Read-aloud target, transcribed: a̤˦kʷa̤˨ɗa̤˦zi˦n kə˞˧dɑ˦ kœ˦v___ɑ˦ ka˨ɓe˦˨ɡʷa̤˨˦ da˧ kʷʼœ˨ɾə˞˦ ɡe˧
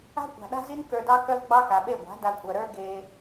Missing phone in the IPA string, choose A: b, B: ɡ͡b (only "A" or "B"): B